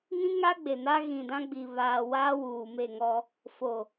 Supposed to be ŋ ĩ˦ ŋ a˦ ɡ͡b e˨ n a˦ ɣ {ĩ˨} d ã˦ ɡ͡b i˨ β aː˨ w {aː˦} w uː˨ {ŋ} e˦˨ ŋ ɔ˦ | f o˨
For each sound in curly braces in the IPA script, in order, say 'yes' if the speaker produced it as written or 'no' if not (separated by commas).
yes, yes, no